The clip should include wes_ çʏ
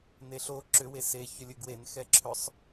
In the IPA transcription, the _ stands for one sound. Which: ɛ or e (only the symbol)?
e